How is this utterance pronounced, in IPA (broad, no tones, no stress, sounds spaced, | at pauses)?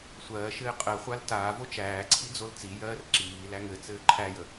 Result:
sʷ ɜː ʃ ɘː qʼ ɜ χʷ a l t aː v o t͡ʃ æː ǀʰ i d͡z o l t͡s i j ɜː r ǁ iː l æ ŋ ɘ t͡s ɘː ǃʰ æ j ə